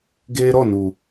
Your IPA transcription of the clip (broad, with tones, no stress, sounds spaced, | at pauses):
ɡ eː˧ ɾ ɔ˦˨ n u˨